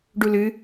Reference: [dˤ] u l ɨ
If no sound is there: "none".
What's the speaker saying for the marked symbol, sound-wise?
ɖ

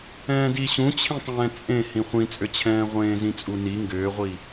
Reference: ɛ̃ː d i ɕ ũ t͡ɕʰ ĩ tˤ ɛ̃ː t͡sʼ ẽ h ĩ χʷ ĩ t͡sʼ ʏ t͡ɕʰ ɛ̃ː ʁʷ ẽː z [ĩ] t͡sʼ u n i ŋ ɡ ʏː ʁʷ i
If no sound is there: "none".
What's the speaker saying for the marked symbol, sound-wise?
ĩ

